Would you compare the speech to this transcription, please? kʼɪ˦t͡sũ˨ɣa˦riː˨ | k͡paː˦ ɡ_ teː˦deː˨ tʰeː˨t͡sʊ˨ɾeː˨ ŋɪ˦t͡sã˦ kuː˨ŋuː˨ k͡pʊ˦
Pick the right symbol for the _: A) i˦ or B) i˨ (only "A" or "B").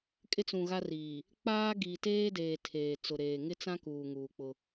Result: B